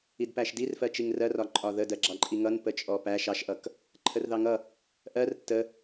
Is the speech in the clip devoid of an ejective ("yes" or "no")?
no